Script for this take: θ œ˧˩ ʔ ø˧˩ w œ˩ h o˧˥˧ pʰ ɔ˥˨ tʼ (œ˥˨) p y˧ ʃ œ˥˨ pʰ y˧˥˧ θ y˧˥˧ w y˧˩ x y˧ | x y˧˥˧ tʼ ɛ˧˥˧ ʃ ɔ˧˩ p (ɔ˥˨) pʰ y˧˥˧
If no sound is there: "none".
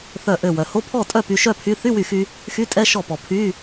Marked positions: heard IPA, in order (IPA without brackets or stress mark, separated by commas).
œ˥˨, ɔ˩